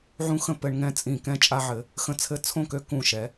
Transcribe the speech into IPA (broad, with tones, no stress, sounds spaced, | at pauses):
ʕ ũ˦ x ə̃˥˩ p ɘ˦ ɳ ŋ ɛ̃˥˩ t͡sʼ ĩ˧˩ k ɛ̃˥˩ t͡ʃʼ a˦ ʕ ɘ˩˧ | x ə̃˦ t͡sʰ ɘ˥˩ t͡sʰ õ˥˩ k ø˦ k ũ˧˩ ʃ ɛ˩˧